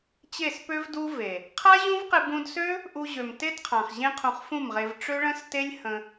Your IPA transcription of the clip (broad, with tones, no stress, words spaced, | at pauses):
t͡ɕe˦˨spø˦vdu˦ ve˨ | qʰa˦ʑũ˦vqɪ˧ bũ˧dsø˦ | ʔu˧ʑø˨m te˦dqʰã˨χ ʑẽ˦qʰũ˧χfũ˦˨mʁe˧v ʈ͡ʂø˦ɭə̃˦ste˦lʲ hə̃˧